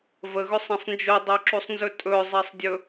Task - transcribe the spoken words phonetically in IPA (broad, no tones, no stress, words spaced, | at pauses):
vəɣɵsˤɛ̃sˤ nd͡ʒodˤoǁusˤnzɵ tʼɵzˤɛsˤdʲɵ